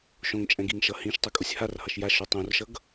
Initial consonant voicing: voiceless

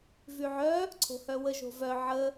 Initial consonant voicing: voiced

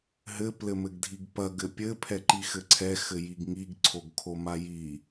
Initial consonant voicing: voiced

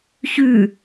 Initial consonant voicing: voiceless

